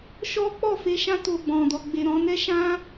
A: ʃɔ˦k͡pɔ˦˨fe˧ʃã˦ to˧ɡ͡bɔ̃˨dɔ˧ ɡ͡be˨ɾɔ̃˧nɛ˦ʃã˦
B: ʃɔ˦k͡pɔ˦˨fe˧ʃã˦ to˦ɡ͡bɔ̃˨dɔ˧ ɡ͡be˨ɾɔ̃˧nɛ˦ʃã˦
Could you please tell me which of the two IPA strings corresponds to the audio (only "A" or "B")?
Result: A